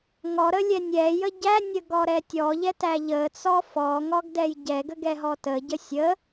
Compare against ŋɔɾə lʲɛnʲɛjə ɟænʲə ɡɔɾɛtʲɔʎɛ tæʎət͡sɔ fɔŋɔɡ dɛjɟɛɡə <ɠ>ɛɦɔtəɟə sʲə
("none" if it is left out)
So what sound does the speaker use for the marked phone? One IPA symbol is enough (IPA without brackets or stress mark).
ɡ